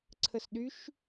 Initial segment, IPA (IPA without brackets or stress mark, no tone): ǀʰ